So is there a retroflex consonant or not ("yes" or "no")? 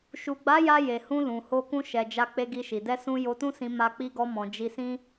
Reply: no